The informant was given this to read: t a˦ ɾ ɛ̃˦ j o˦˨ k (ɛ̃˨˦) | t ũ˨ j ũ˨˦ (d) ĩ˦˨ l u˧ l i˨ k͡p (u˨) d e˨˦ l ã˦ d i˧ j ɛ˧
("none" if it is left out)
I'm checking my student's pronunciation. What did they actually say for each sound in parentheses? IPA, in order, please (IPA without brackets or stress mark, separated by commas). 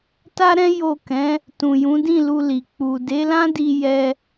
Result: ɛ̃˨˦, d, u˨